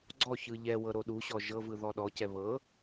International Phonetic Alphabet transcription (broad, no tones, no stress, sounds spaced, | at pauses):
ɡ͡ǀ ɔ ç ɯ ʎ ɛ w ɤ ɾ o ɗ u ɕ ɔ ʒ ɤ v ɯ ð ɔ ɗ ɔ c ɛ β ɤ